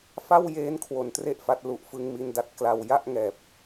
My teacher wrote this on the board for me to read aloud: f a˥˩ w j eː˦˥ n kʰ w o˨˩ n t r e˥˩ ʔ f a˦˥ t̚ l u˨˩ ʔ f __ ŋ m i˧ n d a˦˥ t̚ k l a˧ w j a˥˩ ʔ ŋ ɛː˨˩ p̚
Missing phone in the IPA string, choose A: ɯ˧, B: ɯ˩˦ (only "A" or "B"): A